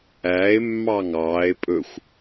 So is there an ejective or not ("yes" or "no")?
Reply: yes